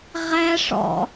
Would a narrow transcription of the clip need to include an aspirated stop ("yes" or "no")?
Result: no